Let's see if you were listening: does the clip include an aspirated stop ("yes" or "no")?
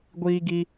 no